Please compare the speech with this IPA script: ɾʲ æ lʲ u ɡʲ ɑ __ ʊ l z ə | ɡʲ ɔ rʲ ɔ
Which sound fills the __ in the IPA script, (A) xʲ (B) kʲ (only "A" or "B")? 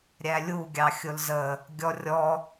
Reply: A